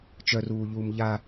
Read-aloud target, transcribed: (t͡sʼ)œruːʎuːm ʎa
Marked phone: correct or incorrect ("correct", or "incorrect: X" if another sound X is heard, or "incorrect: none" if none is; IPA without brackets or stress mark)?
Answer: incorrect: t͡ʃ